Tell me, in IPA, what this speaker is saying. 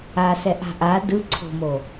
a s ɛ ʔ a̤ ʔ a d ɯ ǀʰ o̤ m o

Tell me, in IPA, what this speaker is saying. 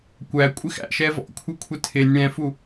kʷ æ kʷʼ ɪ x æ̰ ʃ ɛ v ɔ̰ kʷʰ ɪ kʷʰ ɪ tʰ ɪ nʲ ɽ ɛ̃ f u

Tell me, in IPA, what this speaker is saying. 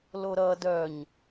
l o ɾ ʌ d œ ɲ

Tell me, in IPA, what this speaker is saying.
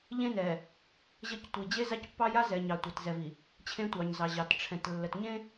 ʎ ẽ˦ n ɛ˨ | ʑ ə˦˨ c tʷ i˨ d͡ʑ e˦ z a˦ c pː ɑ˦ j a˦ z ɛ˨ ɲ ɑ˨ tʷ ɑ˨ t z ɛ˨ v i˨ | t͡ɕʰ ẽ˦ tʷ ɑ˨ ɲ z ɑ˨ ʑ ɑ˨ t ʈ͡ʂʰ ɛ̃˨ t lː ə˨ t ɲ ẽ˦

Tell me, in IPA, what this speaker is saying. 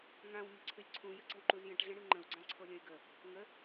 ŋ ã w ɲ ə̤ ǀʰ ɨ lʲ ǀʰ ũ j ə̤ ǀ ə̤ w ǃ u z j ə̃ ʈ ɮ ə̃ ɽ ɨ ŋ͡ǃ ə̃ u̯ ɡ͡ǀ ã ǀʰ o lʲ ə̃ y̯ ɡ ə | ŋ ə

